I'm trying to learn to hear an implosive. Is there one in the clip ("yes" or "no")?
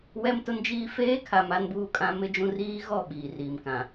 yes